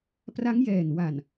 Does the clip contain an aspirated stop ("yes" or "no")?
no